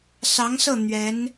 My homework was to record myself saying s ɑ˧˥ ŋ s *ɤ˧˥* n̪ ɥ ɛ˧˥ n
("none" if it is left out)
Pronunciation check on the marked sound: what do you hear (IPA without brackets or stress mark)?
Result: ɤ˥˩